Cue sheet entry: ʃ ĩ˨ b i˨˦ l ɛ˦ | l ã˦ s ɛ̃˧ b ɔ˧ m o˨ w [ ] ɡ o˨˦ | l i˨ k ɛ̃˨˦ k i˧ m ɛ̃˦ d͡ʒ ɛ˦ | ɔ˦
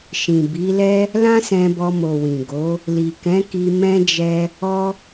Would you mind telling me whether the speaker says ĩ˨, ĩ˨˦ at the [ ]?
ĩ˨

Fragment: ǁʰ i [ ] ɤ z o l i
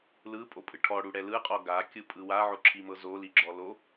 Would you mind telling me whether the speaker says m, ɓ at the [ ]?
m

